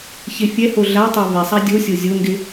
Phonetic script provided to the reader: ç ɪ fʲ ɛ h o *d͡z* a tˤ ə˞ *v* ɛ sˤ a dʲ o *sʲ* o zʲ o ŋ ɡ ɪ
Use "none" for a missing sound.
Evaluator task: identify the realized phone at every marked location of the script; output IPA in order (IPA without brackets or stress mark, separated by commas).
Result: ɮ, v, sʲ